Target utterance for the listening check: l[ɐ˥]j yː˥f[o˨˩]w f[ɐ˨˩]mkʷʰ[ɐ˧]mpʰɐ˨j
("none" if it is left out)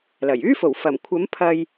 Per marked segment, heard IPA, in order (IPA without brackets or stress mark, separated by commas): ɐ˨˩, o˨˩, ɐ˨˩, ɐ˨˥